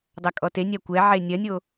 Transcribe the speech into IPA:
dˤɐkʼɔtenʲa kʷɛ ʕenʲɐnʲo

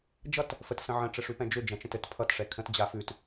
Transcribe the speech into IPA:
d͡ʒʌt | fət sə̃ʕə̃ ʈ͡ʂɘʂʉpɛ̃d͡ʒʏ d͡ʒɛ̃t͡ʃə̃tɘt pʰʌt ʂɛkʰə̃t d͡ʑafʉt

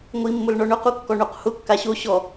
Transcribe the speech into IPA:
ŋʷimːʊl ɳɔɳʊqukːɔ ɳoqhʊ kːaɕo ɕɔ

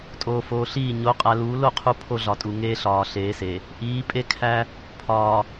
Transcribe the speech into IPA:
tʼoː˨foː˨ɬiː˦˨ ɲo˨˦qʼæ˨luː˨˦lo˨ qʰu˦pʰo˦ɮɒ˨tʼu˨ ŋeː˦ɬɒː˨ɬeː˨˦se˨ | ʔiː˨˦pʼe˦kʰæ˦ | pʰɒː˨

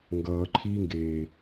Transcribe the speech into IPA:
ŋɡʌːǃʰiːŋɡeː

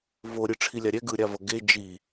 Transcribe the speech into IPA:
vo ɾʲɯʈ͡ʂʰilʲaɾʲɛ ɡɯɾʲavʌ ɡe d͡ʒi

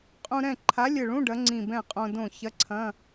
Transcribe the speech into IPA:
qʼũ˧ɾɛ̃˥˩ ǃʰa˨˥lʲɘ˧˩ɭũ˧˥˧ ɖɐ˨˥ŋ͡ǀĩ˧˩bɛ̃˥˩qʼõ˧ dõ˥˩ çɐ˧˥˧ǀʰɐ̃˧˥˧

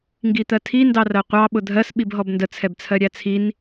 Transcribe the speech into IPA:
ŋɡit̪ɜtʰi ndɑrɜqʷɑ ɓʊdʱɜs ɓibɦɔbndə t͡sʰɛbt͡sʰɜɾʲæt͡sʰin

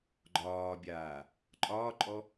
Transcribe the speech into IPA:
ɡ͡ǃɒːbʲaː | ǃʼɒːǃʼɔ

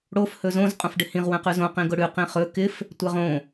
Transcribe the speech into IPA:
ɽof hɵzõz qʼõfɖɪhĩʁ wɛ̃qʉzõ qĩɡʊɽʉ qĩχɵ kɪf | tʷɛʁõ

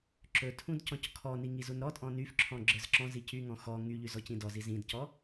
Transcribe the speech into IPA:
ǁɵtʰũd cɔ̃ckʰɔni ŋizunɾɔtʼɔ̃ nyfǁʰɔ̃ ɡ͡ǁə˞zǁɔ̃zi cyŋɔ̃ xɔ ŋyʎyz ɔcĩdɔziz ĩdcɔ

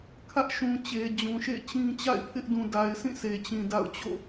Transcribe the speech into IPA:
kʰä˦ʔʃũ˨ t͡ɕe˨d͡ʑũ˨ʃḛ˦˨t͡ɕĩ˦ t͡ɕa̰˦˨ɪ̯pʰɪ˦ʔ dũ˨da˨ɪ̯sʰĩ˦˨ se˨t͡ɕĩ˨ da̰˦˨ʊ̯ t͡ɕo̰˦˨

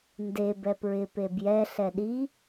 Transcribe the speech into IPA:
nde bɛpɹɪ pebjɛ ɬɛɗi

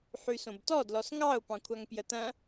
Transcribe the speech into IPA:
ħysõbtɔ dlɔsŋɑʊ̯ pɑ̃kʷʰaŋpjətɐ̃

